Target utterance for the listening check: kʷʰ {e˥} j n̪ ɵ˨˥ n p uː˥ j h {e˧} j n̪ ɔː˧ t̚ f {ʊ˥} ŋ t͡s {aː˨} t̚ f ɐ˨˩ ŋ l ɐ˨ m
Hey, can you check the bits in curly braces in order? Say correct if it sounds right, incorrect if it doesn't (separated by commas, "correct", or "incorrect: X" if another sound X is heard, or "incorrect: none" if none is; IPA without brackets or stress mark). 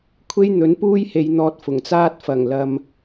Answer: correct, incorrect: e˨˧, incorrect: ʊ˨˩, incorrect: aː˥